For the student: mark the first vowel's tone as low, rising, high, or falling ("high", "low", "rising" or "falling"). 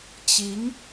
rising